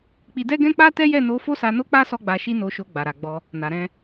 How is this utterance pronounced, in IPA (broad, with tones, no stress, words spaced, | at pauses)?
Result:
k͡pi˧dɛ˦ɡɛ̃˦ k͡pa˦tɛ˦jɛ˦˨ no˧ fo˦sa˧no˦k͡pa˦ sɔ˦ɡ͡ba˧ʃi˦ no˧ʃo˧ ɡ͡ba˨ɾa˨ɡ͡bɔ˧ | na˨ ɾɛ̃˧